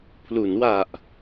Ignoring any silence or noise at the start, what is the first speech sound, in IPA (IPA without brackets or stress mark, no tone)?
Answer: pʰ